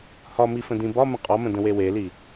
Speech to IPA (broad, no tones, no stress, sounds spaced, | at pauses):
h ɒ m i f ə̃ d ĩ b ɒ m ə̃ qʼ ɒ m ə̃ d ə̃ w e w e l i